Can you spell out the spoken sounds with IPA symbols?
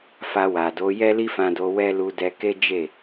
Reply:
fa˧wa˨do˨˦ jɛ˦li˦fã˧do˧ wɛ˦lu˧ dɛ˧ke˦ d͡ʒe˦˨

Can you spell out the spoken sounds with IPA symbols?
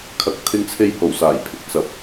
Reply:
kʰɐ˨k̚ t̪ʰɪ˧ŋt͡sʰe˧jho˨˩w saː˨˩jpʰɪ˧k̚ t͡sɐ˨˥p̚

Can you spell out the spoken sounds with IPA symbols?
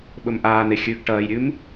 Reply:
ɓɵmʔaːn̪e xʲʉɡ ʈɐːjɾʲʉm

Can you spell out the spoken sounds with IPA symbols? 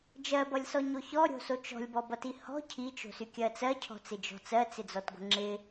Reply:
d͡ʒɜbʌlʲsɔɲo çɔɾʲo̤so t͡ʃɔ̤lʲbɔbʌti hɔ̤ cʰit͡ʃo̤sykʲɜ t͡sɜcʰɔ̤t͡sɪd͡ʒɔ̤ t͡sɜt͡sɪd͡zɔtɡʷə̤ ŋ͡ǁɪ

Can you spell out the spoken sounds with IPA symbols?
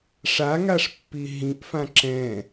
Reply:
ʂaŋaʂpːi ɦĩʔfã ǁɛ̃

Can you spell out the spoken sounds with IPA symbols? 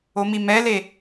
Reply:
omimɛle

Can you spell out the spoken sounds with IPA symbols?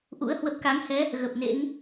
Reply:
ʔṵ˧˥ə̯hwə˦˥p̚ ka˨˦ŋhɛ˨˦ | ɣə˨˩p̚nḛ˧˥ŋ

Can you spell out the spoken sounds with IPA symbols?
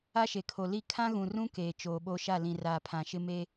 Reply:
a˦ʃe˨kʰo˨li˦˨ kʰã˦ɣũ˨rũ˦ keː˨t͡ʃoː˨ɓo˦ʃa˦˨ lĩ˨ raː˨pʰã˨ ʃɪ˦meː˦

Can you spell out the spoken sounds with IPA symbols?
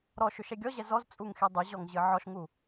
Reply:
ɾɔʃʏ ʃɛɡʲɔʑɛ zɔzt͡sʼuŋ xidˤʏʑɔŋ ʑɨʕɔʃŋu

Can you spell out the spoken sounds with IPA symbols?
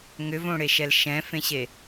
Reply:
ŋʏvõɽeʃɛl ʃɛ̃fẽɕe

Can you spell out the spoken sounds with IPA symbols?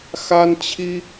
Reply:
xa˥nt͡ɕʰi˥

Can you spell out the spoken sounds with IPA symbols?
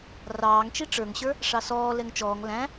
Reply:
rɑːŋt͡ʃi ʈ͡ʂə˞ŋɕə˞ | ʂɑsɔː lɛŋt͡ʃɔːŋ læ̃

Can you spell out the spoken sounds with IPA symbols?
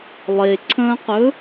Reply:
lˠeǀʰə̃ːqɵ

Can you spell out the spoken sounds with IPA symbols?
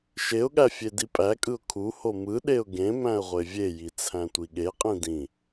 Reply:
ʃeʊ̯ɠæ fʲedipʼækʼɯʊ̯ kʰuho mɯɗeʊ̯ ɡẽ mæ̃ə̯ʁʷevʲeji t͡sʰæ̃tʷiɠeqʼĩ dĩ

